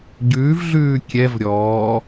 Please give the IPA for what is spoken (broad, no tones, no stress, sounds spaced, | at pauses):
ɟ ʉː v ɮ ʉː kʲ ɛ v ɾʲ ɔː